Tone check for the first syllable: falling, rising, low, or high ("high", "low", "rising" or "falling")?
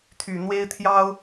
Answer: low